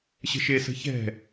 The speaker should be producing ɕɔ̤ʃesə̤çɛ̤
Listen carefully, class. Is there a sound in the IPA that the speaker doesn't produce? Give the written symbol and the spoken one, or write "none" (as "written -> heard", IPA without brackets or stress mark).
ɔ̤ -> ə̤